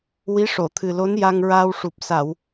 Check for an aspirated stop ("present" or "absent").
present